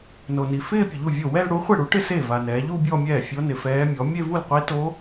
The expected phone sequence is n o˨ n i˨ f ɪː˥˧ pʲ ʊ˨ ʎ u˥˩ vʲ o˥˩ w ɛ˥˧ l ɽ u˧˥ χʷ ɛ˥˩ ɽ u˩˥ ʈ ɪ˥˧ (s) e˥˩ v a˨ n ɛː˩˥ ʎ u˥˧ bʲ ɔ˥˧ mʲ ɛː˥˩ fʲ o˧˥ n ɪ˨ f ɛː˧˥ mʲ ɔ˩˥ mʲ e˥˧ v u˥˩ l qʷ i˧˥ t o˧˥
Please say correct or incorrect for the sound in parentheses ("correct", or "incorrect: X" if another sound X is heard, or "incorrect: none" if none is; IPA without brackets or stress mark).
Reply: correct